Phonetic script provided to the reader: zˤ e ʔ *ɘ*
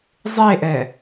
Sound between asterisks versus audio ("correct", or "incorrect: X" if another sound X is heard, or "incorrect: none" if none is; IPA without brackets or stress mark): incorrect: ɛ